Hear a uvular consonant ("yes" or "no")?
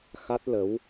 no